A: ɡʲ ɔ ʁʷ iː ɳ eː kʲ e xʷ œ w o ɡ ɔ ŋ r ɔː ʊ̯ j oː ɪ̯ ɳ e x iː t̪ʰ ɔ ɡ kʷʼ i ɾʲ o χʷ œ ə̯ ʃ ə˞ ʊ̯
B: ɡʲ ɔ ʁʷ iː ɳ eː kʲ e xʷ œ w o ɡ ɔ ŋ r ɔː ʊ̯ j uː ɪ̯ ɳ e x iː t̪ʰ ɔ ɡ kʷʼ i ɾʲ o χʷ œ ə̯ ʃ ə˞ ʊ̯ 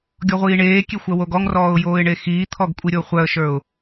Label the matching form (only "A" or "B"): A